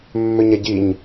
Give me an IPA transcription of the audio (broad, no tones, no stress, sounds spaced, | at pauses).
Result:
mː ø ɲ a ɟ i ɲ